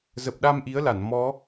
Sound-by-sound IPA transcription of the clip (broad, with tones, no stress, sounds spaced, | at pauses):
z ə˨˩ p̚ ɗ a˧ m ʔ i˨˦ ə̯ l a˧˩ n m ɔ˨˦